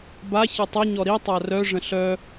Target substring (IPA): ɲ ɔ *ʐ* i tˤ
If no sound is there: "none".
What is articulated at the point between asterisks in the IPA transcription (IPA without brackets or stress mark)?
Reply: ɾ